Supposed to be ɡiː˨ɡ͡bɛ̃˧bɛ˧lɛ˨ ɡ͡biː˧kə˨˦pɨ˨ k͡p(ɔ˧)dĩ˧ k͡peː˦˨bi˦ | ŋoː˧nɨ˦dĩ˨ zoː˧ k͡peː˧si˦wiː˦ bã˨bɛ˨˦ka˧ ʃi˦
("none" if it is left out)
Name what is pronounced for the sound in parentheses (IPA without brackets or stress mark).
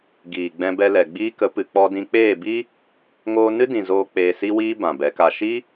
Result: ɔ˧